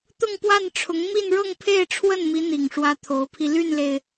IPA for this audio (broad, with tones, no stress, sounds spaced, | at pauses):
t̪ ʊ˥˧ ŋ p w a˥˩ n ʈ͡ʂʰ ʊ˧˥ ŋ m i˥˧ n ɻ ɤ˥˧ ŋ pʰ e˥˧ ɪ̯ ʈ͡ʂʰ w ə˥˩ n m i˧˥ n̪ i˨˩ ŋ ʂ w ä˧˥ t̪ʰ o˧˥ ʊ̯ pʰ i˧ l y˥˩ n l e˩ ɪ̯